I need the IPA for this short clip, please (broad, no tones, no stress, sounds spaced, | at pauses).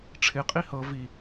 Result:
ʈ͡ʂʰ ɪ qʼ i h ɤ v i